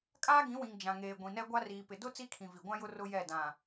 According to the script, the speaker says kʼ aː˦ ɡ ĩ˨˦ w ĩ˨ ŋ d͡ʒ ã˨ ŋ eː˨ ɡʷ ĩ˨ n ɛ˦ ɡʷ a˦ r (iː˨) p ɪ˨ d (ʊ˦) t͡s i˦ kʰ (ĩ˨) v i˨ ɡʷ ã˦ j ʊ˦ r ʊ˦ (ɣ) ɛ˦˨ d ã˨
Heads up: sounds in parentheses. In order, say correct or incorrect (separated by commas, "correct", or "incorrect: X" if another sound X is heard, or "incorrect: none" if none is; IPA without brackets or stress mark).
correct, correct, correct, incorrect: j